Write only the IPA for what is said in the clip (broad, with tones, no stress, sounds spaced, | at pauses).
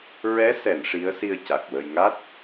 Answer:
ɹ ɛ˧˥ s ɛ˨˩˨ n ʂ i˧˥ ə̯ s i˧ ə̯ c a˨˩ k̚ w ə˧ j ŋ a˦˥ t̚